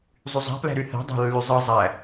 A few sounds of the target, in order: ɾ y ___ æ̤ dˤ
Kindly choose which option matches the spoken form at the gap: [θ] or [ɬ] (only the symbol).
θ